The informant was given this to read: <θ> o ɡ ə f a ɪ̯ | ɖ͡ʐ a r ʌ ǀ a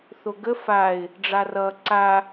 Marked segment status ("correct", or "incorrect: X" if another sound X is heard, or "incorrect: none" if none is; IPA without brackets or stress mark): correct